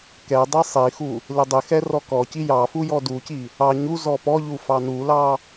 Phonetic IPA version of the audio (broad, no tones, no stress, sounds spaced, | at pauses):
k ɛ dˤ ɛ sˤ i x u | l ɪ dˤ ɪ x ɛ r ɔ k ɔ c i j ɑ f u j ɔ d u c i | ɑ ɲ u z ɔ p ɔ ʎ u f ɑ n u l ɑ